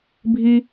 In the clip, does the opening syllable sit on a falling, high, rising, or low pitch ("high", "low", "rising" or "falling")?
high